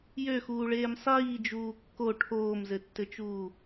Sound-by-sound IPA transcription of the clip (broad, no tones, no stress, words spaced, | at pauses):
jøxuːɭeːm sˤiːd͡ʒuː kːo ʈʰoːmzɘtːɘt͡ʃuː